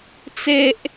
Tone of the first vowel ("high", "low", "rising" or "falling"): high